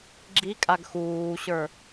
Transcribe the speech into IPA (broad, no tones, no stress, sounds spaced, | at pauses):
ɡ͡ǁ i kʼ a ɡ x uː ɕ ə˞